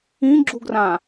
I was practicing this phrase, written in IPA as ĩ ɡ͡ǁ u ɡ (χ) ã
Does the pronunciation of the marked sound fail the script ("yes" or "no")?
yes